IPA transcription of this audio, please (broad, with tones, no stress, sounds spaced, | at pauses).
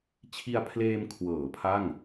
t͡ɕʰ i˧ a̯ pʰ l eː˧ m kʰ w ɤː˩˦ pʰ a˥˩ ŋ